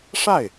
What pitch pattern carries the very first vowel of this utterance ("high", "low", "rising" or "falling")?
falling